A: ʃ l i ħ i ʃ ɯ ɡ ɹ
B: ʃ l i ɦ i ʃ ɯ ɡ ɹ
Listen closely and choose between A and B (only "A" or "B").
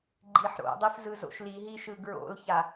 B